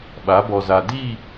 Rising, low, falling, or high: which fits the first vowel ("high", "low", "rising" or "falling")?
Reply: rising